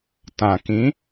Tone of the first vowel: low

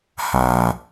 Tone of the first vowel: low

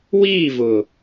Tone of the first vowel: falling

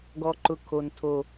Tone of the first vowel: low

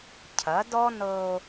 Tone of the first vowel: rising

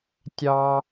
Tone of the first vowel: high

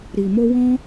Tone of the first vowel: low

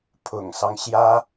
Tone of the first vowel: low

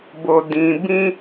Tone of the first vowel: low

